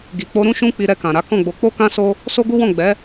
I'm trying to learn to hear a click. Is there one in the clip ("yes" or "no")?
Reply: no